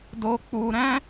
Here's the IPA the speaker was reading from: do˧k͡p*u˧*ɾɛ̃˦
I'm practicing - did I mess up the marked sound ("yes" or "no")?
no